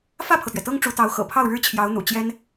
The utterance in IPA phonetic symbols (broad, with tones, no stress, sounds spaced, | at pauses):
f ä˥˩ pʰ ɤ˩ t̪ ɥ ɛ˩ t̪ ɤ˥ ŋ ʈ͡ʂ u˧˥ t̪ ɑ˧˥ ʊ̯ x ɤ̰˨˩ pʰ ɑ˥˩ ʊ̯ ɻ ɻ̩˥ t͡ɕʰ j ɑ˧˥ ʊ̯ n̪ ṵ˨˩ t͡ɕ j ɛ˥ n